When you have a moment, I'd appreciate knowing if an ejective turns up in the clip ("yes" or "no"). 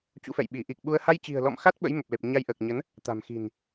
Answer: no